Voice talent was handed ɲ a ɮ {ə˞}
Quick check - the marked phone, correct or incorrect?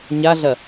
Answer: incorrect: ɐ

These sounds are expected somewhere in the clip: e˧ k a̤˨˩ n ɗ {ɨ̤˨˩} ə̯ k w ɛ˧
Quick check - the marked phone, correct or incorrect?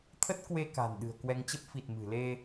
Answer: correct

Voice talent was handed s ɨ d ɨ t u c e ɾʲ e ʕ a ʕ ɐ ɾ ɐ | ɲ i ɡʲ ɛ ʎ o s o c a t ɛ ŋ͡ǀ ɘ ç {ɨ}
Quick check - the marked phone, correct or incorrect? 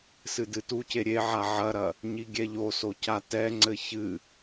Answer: correct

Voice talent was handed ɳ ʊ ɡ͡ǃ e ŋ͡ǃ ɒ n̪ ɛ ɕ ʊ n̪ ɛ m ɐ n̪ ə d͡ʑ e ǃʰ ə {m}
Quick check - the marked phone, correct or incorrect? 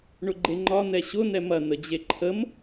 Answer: correct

